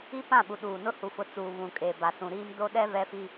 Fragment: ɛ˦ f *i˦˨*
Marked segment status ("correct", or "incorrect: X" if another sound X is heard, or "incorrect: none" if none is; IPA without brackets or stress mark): incorrect: i˦